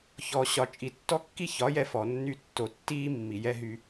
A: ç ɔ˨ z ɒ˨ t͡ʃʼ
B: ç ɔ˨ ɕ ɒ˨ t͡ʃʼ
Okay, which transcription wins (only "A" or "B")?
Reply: B